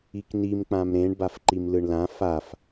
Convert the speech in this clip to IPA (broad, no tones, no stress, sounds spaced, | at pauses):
i k n i m k͡p ã m ɾ ẽ ɳ b a f ǃ i m l ɯ ɳ l ã f a f